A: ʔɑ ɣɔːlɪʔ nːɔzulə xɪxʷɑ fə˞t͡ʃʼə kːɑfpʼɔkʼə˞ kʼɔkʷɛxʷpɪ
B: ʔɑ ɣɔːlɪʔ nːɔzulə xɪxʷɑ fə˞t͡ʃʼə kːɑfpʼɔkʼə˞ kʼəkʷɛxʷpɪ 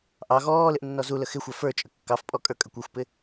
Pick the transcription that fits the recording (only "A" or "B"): B